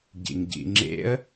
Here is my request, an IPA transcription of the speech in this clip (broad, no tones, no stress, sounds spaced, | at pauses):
ɟ ḭ ŋ ɟ ḭ ŋ͡ǁ ḛ ə̯